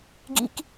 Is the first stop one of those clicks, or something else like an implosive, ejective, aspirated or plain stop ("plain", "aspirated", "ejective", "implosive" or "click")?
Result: plain